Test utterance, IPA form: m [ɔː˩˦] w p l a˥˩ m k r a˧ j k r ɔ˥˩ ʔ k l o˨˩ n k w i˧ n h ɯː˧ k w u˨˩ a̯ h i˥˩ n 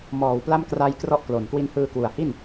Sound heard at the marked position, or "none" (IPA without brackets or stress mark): ɔː˩˦